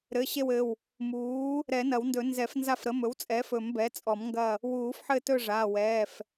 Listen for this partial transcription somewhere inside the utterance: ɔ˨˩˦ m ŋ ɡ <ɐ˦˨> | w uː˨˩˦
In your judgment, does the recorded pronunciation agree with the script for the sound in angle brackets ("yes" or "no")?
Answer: yes